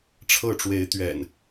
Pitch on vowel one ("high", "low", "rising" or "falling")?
falling